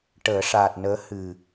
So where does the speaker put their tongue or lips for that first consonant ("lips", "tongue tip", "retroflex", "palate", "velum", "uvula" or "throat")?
retroflex